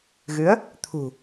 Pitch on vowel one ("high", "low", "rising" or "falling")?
rising